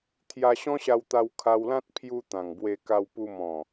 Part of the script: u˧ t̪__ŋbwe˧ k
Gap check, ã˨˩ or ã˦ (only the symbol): ã˨˩